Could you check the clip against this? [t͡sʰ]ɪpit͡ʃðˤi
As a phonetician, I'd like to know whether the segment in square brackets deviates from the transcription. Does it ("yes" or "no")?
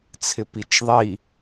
no